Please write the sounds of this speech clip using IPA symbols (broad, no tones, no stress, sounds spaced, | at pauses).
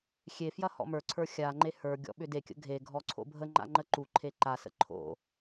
xʲ e f j ɐ h ɔ̰ m ə˞ ǀʰ ə˞ xʲ a ŋ͡ǃ e h ə˞ ɡʲ ɔ̰ ɓ ʏ d e kʲ ə̰ ɡʱ e ɡʱ ɔ ǀʰ o̰ bʱ ə ŋ͡ǃ a̰ ŋ͡ǃ ə ǃ u ǃʰ e ǃ a s ə̰ ǃʰ o̰